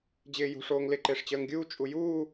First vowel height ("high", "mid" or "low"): high